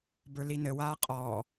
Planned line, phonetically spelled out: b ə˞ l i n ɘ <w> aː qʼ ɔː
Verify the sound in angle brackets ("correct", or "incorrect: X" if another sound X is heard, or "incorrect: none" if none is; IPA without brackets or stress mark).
correct